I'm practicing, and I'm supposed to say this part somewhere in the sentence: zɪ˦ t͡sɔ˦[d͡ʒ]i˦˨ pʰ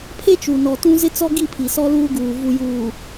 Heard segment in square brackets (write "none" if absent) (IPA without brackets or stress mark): ɡ